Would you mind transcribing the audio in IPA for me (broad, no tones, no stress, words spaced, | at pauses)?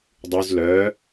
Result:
dˤʉz lœ